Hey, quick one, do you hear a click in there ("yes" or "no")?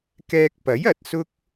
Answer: no